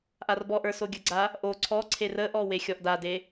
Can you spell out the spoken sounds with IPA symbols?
ʔarbɔʔə˞ soɡʲəɡ͡ǀa | ʔo ǀʰɔ ǀʰerəʔɔ wexʲɔʔdade

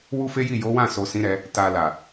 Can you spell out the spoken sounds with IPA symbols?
wu˦fe˦ji˦˨ jo˨˦wã˦˨so˨ sĩ˨˦ɾɛ˧ | ta˨la˨

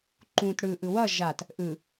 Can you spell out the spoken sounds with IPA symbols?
ǃũt ɽɯʔɯ wʌ ʒat | ʔɯ

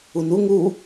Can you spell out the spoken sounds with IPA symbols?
unu ŋu

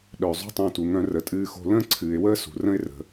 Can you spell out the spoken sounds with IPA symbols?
ɗœ˩ zˤṳ˥tˤõ˧tu˩ ŋœ̃˧rə˩tʼɨː˧xo̤˧ lə̃ː˥ǀʰɨː˩ɪ̯wəː˥ sṳ˩ rə̃˥ɪ̯rə̤˩

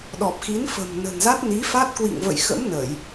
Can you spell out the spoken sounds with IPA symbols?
ɗɔ˨˩p̚xi˨˦nfə̤˨˩m nə̤˨˩nza˦˥t̚ni˨˦fa˦˥t̚ kwḭ˧˨ŋvə̰˧˨jxə̰˧˥m nə˧˩˨j

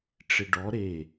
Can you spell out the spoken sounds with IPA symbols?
ʈ͡ʂɪɖɔ ɾe

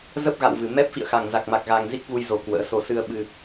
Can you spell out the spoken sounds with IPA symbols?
zə˦˥p̚ɣa̰˧˨wvɨ˧˩ mɛ˦˥p̚ fḭ˧˨ə̯xa˨˩ŋza˨˩k̚ma˨˩k̚ ɣa˧ŋ zi˦˥k̚vu˧jzo˨˩ kwə̰ː˧˥so˧ sɨ˧ə̯ɓɨ˧

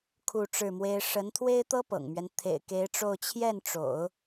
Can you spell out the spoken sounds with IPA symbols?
kʰu˥˧ʈ͡ʂɻ̩˥˩mwe˥ɪ̯ ʂə˧˥nt̪ʰwe˥ɪ̯t̪ɤ˥ pɤ̰˨˩ŋmɥɛ˦n t̪ʰḛ˨˩ɪ̯ke˧˥ɪ̯ʈ͡ʂo˥˧ʊ̯ t͡ɕʰjɛ˥˩nʈ͡ʂo̰˨˩˦ʊ̯

